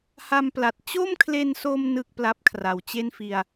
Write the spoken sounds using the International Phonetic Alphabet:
h a˧ m p l a˨˩ t̚ t͡ɕ o˥˩ m kʰ l e˧ n s o˧ m n ɯ˥˩ k̚ p l a˦˥ p̚ kʰ r a˨˩ w t͡ɕ e˥˩ n f i˧ a̯

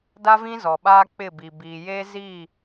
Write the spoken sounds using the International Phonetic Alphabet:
d a˦ v ĩ˦ z ɔ˨ ɓ aː˦ k͡p ɪ˦˨ b i˨ b iː˨ j eː˦ z i˦˨

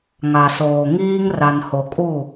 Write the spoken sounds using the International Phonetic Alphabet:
ŋ a˨ s oː˨ ŋ iː˦ ŋ r a˨ n h o˨ kʼ u˦˨

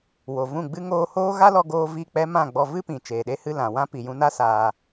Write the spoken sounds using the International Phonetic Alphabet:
w o˨ v ũ˦˨ ɡ͡b ɨ˧ ŋ oː˧ h oː˦ ɣ a˦ l ɔ˧ ɡ oː˧ v i˦˨ k͡p ɛ˦ m ã˦˨ ɡ͡b ɔ˧ v ɨ˦ p ĩ˨ t͡ʃ eː˨ ɗ e˦ h ɨ˦ l ã˨ w ã˦ p i˨ j ũ˧ n a˦ s aː˧

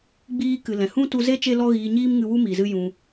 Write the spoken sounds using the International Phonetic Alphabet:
ɡ͡b iː˦ k ɨ˨ l ɛ̃˨ h ũ˦ t u˧ z e˦ t͡ʃ e˦ l ɔ˦ ɣ iː˧ ɲ iː˦ m ŋ ɨ˧ w u˦ m i˨ z ɨ˦ j ũ˧

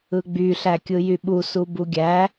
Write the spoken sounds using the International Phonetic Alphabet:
ɯ ɡ͡b y ɬ æ kʲ ɯ j y ɓ u s u b u ɡʲ æ

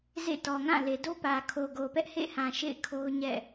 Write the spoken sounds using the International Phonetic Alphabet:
z ḛ˦˨ t ɔ˨ ŋ ã˦˨ l e˨ d o˦ p ä˨ kʰ o˨ ɡ o˨ p ɛ˦ ʔ h ḛ˦˨ h ã˨ ʃ ḛ˦˨ ɪ̯ kʰ o˦ ʊ̯ ɲ ɛ̰˦˨

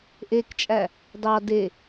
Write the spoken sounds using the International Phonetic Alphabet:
ʔ e k t͡ʃʼ æ | d ɑ d e

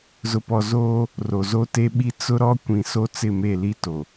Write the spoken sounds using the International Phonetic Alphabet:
z ʊ˨ p ɔ˨ z oː˦ | r o˨ z o˦ t e˦ ɓ i˦ t͡s ʊ˦ ɾ ɔ˦ kʷ ĩ˨ s o˦ t͡s ɪ˦˨ m e˦˨ l i˦ t o˨

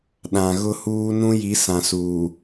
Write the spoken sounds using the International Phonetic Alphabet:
ɗ ã˨ ɣ ʊ˦ h uː˦ n ũ˦ j i˨˦ s ã˨ s uː˨

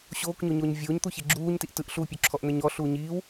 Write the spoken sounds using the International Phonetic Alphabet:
ɕ oː k ɲ o ɲ oː ɲ vʲ oː ɲ t̪ u ç e ɡ͡ǁ uː ɲ t i ʔ t ɯ ʔ ɬ uː pʲ o ǁʰ ɔ ʔ n̪ ɛ ɲ ɔ ɬ uː ɲ iː w

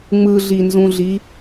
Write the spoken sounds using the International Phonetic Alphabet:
ŋ͡m ɯ ɮ i n z ũ ɮ i

